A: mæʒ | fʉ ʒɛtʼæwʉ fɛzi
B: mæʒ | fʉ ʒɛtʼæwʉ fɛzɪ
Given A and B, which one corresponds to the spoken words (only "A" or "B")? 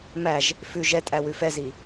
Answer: A